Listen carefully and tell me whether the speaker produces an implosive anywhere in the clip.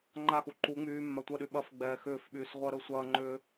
yes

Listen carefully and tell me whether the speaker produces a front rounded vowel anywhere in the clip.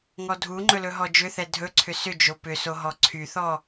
yes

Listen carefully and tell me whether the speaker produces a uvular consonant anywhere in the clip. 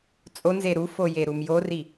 no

